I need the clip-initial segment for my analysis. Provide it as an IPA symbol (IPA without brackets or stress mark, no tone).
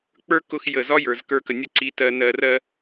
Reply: k͡p